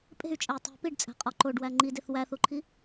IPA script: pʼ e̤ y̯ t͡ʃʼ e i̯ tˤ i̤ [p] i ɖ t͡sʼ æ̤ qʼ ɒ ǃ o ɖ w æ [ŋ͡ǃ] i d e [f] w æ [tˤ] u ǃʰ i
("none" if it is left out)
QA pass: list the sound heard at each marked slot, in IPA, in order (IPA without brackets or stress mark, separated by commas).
p, ŋ͡ǃ, θ, θ